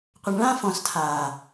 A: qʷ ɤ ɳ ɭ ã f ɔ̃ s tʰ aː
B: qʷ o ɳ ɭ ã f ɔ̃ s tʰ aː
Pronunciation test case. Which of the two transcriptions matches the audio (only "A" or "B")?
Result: A